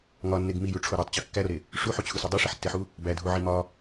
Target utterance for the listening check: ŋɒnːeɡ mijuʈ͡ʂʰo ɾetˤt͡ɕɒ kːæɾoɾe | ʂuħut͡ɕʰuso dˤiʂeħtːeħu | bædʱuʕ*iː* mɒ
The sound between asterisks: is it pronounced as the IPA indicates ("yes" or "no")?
no